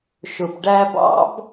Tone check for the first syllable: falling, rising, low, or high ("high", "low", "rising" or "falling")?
low